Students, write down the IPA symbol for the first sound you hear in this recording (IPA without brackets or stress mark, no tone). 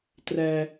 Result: t